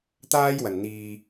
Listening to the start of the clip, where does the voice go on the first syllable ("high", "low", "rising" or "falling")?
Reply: high